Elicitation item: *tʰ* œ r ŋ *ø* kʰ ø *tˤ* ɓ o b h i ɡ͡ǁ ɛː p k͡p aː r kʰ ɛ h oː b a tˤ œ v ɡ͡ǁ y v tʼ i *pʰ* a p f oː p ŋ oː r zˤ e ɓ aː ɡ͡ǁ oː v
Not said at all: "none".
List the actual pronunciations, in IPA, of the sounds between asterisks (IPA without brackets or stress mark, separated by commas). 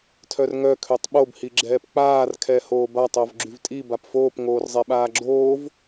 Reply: tʰ, œ, tˤ, b